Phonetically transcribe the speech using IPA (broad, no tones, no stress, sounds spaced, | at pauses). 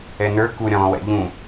ɛ n ə˞ k u ɾʲ ã lˠ ũ w ɛ̰ ʎ ũ